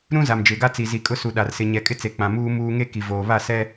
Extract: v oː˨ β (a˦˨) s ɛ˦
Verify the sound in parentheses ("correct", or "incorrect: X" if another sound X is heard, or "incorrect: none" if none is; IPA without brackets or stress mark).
correct